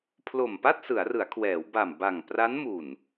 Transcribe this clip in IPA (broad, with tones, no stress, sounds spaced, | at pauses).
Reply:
pʰ l o˨˩ m p a˥˩ t̚ s ɯ˩˦ a̯ r ɯ˩˦ a̯ kʰ w ɛː˩˦ w b a˨˩ m b a˨˩ ŋ p r a˦˥ n m u˨˩ n